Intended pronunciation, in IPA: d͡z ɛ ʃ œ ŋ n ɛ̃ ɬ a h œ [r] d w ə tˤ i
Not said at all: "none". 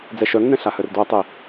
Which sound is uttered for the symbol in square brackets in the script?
r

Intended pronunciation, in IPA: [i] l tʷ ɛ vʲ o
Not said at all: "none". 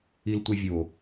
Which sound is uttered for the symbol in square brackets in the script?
i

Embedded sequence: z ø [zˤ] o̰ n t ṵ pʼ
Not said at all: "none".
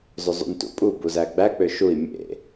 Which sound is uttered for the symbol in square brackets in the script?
zˤ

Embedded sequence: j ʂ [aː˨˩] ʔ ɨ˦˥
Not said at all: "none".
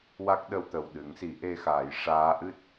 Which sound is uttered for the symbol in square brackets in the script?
aː˧˥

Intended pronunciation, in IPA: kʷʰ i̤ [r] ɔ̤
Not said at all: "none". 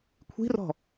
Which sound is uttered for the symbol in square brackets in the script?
r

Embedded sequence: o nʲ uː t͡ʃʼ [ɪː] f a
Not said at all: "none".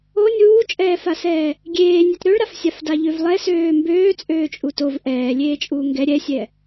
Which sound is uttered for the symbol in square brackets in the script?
ɛː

